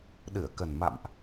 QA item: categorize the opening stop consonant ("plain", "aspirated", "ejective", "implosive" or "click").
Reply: implosive